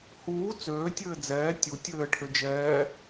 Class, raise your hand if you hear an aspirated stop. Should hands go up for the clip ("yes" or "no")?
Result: yes